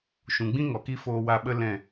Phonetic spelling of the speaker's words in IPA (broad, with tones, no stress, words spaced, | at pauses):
ʃũ˨ɡ͡bĩ˦ ŋɔ˨ki˦ foː˧wa˧ɓə˦ lɛ̃˦˨